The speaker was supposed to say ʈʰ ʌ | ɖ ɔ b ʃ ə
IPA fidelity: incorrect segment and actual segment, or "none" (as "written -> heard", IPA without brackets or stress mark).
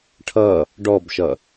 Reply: ə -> ʌ